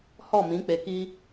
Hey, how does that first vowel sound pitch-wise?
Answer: falling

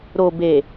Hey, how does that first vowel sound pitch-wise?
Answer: low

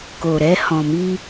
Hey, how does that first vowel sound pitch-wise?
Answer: low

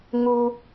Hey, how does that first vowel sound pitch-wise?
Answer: low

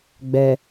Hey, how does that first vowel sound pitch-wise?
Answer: low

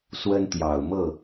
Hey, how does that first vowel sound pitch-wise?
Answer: high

